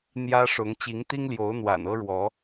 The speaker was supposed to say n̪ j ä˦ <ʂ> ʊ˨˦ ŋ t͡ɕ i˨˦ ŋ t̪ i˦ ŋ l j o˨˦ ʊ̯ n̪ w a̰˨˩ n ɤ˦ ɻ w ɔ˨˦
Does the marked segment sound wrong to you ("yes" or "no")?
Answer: no